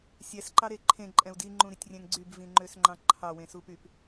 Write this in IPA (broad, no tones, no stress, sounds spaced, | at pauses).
sʲ ɛ s ǃ ɑ ɾ e ǃʰ ẽ ǃʼ ɛ̃ u̯ d i ŋ͡ǃ ũ ɾ i tʲ rʲ ɛ̃ ŋ ɡ͡ǀ y b v ĩ ŋ͡ǃ ø s ŋ͡ǃ ɑ̃ ǃʰ ɑ w ẽ s u p y p